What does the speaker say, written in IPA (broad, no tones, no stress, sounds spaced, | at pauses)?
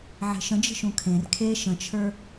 ʕ e̤ ʃ ə̃ d͡ʒ ə̤ ʃ ũ kʰ ẽ r kʰ e ʃ ə̃ t͡ʃʰ ə˞